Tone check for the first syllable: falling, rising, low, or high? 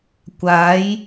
rising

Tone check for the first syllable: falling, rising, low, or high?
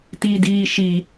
high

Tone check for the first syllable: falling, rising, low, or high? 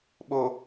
low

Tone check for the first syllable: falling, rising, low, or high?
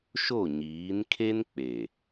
falling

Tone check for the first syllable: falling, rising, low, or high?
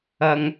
high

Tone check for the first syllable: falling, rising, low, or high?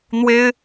high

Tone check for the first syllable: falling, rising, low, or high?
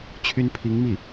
high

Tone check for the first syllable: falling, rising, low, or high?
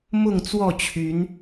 falling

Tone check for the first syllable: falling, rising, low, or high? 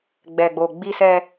low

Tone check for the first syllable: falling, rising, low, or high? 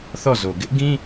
falling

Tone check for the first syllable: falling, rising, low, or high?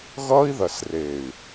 high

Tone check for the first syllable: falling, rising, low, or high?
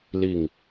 falling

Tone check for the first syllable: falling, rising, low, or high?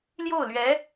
falling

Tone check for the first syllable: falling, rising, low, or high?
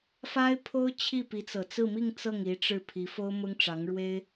high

